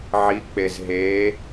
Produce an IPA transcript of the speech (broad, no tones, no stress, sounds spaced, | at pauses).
ʕ i k͡p e z ɦ e